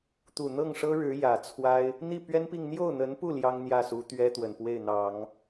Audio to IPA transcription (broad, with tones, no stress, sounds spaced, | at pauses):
t̪ u˨˩ n̪ ɤ˥˩ ŋ ʂ ɤ˥ ɻ ɻ̩˧˥ j ä˨˩ t͡sʰ w a˥ ɪ̯ | n̪ i˥˩ p ɥ ɛ˥ n p i˥˧ ŋ n̪ j o˥˩ ʊ̯ n̪ ə˧˥ n p u˥˩ l j ɑ˥ ŋ n̪ j ä˥˩ s u˧˥ t̪ ɥ ɛ˥ t̪ w ə˨˩ n p w e˥˩ ɪ̯ n̪ ɑ˨˩˦ ŋ